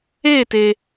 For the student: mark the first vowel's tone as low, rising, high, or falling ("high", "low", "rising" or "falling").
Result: falling